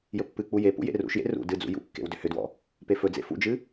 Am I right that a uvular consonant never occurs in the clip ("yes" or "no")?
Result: yes